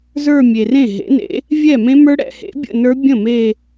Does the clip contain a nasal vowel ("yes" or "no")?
yes